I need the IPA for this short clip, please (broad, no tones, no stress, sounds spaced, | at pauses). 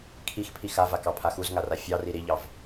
kʰ i x pʰ i x a v a k ɑ pʰ a x u z ŋ a r a fʲ ɑ r i ɾ i ʎ ɑ v